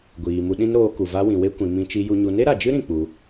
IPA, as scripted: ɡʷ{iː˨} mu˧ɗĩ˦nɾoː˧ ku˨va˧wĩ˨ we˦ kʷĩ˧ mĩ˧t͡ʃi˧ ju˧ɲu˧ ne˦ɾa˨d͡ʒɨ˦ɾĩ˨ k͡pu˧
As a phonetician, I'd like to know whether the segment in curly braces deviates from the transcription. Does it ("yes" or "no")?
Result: no